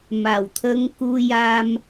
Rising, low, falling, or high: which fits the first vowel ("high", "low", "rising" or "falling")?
low